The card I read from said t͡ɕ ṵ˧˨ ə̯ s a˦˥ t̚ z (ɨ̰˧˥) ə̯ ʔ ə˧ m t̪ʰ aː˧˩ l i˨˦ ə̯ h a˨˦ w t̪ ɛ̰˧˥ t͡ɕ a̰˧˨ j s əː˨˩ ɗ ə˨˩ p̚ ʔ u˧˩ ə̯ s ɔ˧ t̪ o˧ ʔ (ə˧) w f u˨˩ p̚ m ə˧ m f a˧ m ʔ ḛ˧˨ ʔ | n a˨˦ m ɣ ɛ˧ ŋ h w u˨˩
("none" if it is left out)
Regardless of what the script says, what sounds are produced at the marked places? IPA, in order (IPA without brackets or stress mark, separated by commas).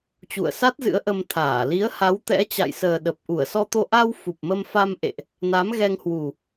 ɨ̰˧˥, a˧